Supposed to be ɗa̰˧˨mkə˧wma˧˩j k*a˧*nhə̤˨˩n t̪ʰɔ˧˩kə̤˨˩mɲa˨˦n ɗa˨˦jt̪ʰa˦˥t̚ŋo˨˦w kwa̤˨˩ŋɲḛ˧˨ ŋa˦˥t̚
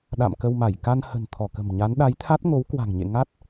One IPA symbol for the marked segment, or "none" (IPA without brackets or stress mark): a˧